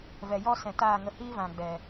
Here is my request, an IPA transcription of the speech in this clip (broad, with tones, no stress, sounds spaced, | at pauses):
v ɛ˨ j ɔ˦ s ɛ̃˨ t aː˦˨ ŋ ə˧ h iː˦ v ã˨ ɡ͡b ɛ˨